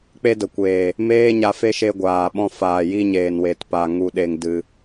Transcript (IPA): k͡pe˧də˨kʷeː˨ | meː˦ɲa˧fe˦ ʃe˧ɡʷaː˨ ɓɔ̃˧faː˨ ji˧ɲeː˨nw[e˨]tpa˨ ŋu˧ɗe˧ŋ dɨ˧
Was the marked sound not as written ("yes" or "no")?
no